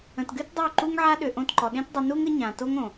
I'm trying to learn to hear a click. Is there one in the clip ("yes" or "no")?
yes